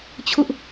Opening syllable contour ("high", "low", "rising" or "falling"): high